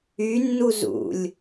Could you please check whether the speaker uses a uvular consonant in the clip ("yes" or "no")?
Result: no